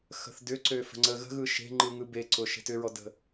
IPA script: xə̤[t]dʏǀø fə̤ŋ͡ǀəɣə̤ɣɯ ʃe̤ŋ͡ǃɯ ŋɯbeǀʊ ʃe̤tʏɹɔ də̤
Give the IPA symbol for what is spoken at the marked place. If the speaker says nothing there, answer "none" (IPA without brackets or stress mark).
θ